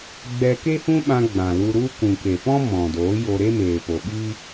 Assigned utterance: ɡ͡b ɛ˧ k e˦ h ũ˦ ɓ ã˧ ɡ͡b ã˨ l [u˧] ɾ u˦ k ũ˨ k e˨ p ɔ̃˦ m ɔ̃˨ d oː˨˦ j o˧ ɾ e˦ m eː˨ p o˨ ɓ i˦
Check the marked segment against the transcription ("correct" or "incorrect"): correct